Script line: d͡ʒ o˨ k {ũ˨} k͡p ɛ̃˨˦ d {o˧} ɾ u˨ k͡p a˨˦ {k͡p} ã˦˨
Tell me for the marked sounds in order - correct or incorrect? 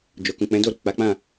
correct, incorrect: o˦˨, correct

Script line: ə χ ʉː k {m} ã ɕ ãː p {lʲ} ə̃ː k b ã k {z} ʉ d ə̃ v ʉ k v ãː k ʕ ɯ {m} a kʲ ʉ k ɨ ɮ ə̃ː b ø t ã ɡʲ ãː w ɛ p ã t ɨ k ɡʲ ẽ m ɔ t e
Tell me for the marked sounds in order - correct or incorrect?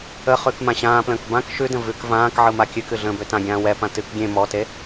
correct, incorrect: l, incorrect: ʃ, correct

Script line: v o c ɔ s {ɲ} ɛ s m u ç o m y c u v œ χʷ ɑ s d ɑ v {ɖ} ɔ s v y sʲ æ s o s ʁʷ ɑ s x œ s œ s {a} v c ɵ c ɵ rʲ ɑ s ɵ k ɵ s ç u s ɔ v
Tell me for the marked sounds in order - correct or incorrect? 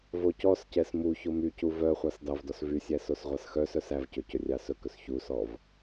incorrect: c, incorrect: d, incorrect: æ

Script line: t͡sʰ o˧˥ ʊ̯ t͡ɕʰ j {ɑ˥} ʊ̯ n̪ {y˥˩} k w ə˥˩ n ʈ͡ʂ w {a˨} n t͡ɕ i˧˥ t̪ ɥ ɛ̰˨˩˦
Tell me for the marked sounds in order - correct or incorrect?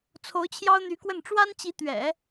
correct, incorrect: y˧˥, incorrect: a˥

